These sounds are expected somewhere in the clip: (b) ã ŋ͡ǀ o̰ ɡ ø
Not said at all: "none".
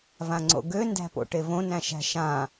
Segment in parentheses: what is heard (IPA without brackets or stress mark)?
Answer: v